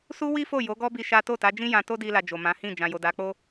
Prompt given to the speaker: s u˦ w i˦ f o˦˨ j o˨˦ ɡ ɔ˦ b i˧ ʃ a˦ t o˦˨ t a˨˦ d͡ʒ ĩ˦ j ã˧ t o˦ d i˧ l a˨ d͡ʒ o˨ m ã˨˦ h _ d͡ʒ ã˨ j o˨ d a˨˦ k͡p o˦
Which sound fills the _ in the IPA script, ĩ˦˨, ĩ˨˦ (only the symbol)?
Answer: ĩ˦˨